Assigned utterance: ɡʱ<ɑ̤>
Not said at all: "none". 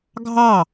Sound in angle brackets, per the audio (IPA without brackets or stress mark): ɑ